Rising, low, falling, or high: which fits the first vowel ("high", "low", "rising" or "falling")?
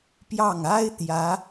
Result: falling